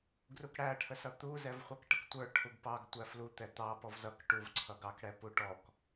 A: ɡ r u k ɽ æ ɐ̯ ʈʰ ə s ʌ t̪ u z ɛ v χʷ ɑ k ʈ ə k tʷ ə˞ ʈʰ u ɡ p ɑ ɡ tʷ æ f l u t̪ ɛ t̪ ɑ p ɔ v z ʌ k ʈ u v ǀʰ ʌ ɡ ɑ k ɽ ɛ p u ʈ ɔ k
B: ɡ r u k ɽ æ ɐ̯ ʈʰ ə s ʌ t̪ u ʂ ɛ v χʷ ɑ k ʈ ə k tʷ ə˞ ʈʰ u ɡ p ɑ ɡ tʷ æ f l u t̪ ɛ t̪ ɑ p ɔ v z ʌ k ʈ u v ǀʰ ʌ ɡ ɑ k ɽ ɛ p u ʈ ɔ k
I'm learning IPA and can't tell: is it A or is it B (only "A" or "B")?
A